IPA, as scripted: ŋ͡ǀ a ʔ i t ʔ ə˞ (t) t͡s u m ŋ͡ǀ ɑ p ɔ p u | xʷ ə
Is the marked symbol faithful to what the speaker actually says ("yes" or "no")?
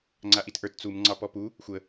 yes